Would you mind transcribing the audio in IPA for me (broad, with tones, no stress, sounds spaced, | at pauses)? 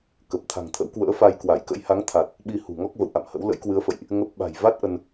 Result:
k ə˨˩ p̚ t̪ʰ a̤˨˩ ŋ t̪ʰ ə̰˧˥ w k w ə̰ː˧˥ f a˧ j k w a˧˩ j k ə̰˧˥ j h a˨˦ ŋ t̪ʰ a˨˩ t̚ | ɓ i˧ h ṳ˨˩ ŋ ɔ˦˥ k̚ v ə̰˧˨ w ʔ a̰˧˨ m h ə̰˧˥ w l ə̰˧˥ j k w ɨ˨˦ ə̯ f ə̰˧˨ j ʔ | ŋ ə˦˥ p̚ ɓ a̤˨˩ j v a˦˥ t̚ ʔ ə˧ n